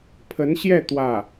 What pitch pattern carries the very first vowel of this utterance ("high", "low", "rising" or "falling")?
rising